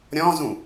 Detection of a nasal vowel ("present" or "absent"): present